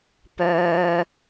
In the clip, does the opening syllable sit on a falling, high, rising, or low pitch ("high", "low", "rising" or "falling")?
high